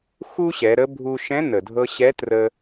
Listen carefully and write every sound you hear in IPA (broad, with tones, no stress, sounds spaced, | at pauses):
x u˥ ɕ ɛ˩˧ ɾ ə˧˥ bʱ u˥ ʃ ɛ̃˧˥ n ə˩ dʱ ɤ˧ ɕ ɛ˧˥ t r ə˧